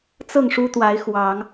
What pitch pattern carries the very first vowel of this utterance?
falling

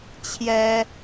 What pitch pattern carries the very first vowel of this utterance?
high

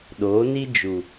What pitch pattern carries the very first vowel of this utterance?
rising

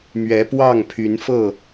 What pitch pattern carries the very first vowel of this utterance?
rising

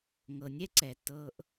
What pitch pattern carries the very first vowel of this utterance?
low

